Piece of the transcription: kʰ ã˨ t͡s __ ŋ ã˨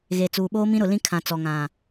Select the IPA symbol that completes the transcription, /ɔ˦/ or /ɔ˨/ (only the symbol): ɔ˨